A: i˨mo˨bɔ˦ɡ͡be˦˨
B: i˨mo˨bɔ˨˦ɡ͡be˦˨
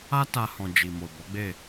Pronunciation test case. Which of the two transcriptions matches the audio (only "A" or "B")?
B